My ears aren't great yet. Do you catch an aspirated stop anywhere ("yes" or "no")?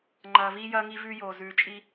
no